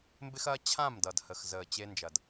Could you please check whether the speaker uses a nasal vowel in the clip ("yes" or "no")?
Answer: yes